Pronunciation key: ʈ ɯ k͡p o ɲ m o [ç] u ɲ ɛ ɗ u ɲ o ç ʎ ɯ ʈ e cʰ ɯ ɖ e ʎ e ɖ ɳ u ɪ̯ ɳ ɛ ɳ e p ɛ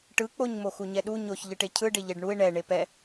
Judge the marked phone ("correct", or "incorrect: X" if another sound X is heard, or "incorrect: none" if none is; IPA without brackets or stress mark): incorrect: x